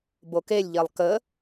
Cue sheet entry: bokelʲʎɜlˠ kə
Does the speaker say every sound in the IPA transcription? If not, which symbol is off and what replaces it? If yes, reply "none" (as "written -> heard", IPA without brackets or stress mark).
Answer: none